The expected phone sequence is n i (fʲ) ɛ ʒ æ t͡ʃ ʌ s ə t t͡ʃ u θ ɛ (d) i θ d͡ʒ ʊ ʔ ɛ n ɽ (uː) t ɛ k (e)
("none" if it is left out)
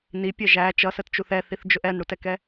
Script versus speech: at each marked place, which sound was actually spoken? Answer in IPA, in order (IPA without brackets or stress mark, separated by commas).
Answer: pʲ, θ, u, ɛ